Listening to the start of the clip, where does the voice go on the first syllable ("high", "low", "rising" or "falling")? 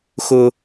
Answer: high